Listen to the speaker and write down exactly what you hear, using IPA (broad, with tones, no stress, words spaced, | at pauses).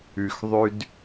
ʉ˧xðˤʉ˦d